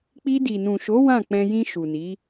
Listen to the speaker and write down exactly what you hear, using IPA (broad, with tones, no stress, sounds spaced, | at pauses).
k͡p i˧ d i˨ n ũ˨ ʃ o˨˦ w ã˦˨ k͡p ɛ̃˧ j ĩ˧ ʃ u˨ n i˨˦